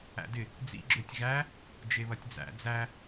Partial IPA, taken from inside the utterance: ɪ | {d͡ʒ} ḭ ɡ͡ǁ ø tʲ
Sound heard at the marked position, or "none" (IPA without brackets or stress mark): d͡z